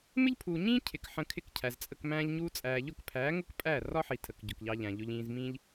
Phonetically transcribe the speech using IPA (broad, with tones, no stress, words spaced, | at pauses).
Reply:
mɪ˦ʎpʰuː˨ɲĩː˦ cʰɪ˨k ħə̃˧kʰɪ˦˨kcʰæ˨zt͡sʼə˧k mæ̃ː˧ʎɲuː˧t͡sʼæː˨ ʎʊ˦˨kpʰæː˨˦ŋʊ˦k pʼæ˦˨ rɒ˦ħi˨ tʰə˨kɟʊ˨kʎɑ˧ʎæ̃˨ ʎʊ˧ʎĩː˧zmĩː˦ʎ